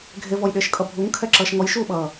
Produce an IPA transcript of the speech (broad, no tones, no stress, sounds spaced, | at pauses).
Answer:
ɡʱ e v ɔ j ɗ eː ʃ kʼ ʌ bʱ u ŋ kʰ ɛ ǁ ʌː ʃ ŋ ɔ j ʃ uː ɓ ʌː